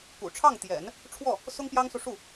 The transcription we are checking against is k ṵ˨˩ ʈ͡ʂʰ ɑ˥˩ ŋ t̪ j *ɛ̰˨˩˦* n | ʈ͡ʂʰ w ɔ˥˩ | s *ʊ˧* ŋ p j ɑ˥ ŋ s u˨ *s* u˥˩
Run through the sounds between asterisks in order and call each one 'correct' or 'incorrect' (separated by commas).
correct, incorrect, incorrect